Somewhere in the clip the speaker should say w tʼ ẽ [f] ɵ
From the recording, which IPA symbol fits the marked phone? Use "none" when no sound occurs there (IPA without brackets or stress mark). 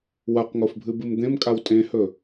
h